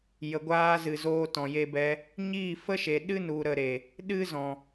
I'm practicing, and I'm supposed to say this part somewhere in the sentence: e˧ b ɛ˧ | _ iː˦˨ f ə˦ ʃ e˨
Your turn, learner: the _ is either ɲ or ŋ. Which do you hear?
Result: ɲ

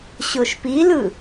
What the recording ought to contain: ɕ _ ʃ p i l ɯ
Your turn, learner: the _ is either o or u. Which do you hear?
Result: o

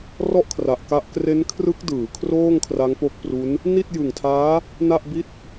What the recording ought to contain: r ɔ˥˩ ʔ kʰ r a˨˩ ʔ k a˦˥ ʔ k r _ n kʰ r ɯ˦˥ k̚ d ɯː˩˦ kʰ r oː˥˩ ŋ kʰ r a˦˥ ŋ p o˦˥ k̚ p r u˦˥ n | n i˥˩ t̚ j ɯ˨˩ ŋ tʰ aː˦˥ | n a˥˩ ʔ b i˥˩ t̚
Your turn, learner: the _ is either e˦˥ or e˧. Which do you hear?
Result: e˦˥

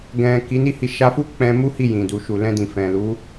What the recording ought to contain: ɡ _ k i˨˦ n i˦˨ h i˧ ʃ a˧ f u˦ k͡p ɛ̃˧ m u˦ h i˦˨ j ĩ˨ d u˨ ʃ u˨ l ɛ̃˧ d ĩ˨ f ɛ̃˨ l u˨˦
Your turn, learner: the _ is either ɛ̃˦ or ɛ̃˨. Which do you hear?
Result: ɛ̃˨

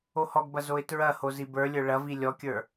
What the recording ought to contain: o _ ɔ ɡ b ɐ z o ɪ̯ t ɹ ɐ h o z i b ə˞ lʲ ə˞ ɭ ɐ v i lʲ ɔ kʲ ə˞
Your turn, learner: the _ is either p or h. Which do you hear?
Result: h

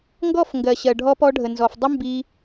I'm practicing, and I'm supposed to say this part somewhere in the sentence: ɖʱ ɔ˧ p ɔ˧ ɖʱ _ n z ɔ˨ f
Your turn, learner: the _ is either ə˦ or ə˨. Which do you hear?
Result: ə˨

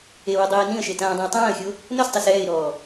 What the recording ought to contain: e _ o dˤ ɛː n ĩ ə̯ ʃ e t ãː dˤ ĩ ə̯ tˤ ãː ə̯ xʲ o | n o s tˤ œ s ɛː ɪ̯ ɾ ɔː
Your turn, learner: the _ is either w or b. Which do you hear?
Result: w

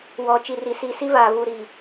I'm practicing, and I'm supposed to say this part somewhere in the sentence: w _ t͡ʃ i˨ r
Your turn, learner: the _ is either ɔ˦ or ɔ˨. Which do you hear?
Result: ɔ˨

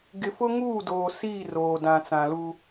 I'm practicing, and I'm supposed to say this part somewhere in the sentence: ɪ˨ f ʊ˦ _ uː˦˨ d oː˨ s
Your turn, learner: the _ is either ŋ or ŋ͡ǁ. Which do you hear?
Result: ŋ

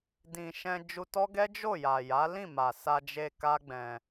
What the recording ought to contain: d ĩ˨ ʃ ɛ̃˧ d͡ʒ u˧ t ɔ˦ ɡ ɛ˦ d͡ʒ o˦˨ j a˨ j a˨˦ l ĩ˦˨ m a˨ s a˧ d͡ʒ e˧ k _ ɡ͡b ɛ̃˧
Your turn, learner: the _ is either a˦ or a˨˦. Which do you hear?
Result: a˦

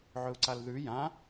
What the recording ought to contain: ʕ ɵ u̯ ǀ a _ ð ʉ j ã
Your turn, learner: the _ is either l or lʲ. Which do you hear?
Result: l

